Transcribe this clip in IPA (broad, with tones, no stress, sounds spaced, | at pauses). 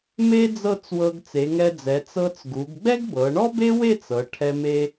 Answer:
m e˥ d͡z ɤ˥˧ t͡s w ɤ˧ ɡ t͡s e˩˧ ŋ ɛ˧ d͡z ɛ˩˧ t͡s ɤ˧ t͡s ɡ u˩˧ ɡ ɡ͡b ɛ˥ ɡ b ɤ˩˧ ɳ ɔ˥ b e˥ w e˥˧ t͡s ɤ˩˧ ʈʰ ɛ˧ m e˧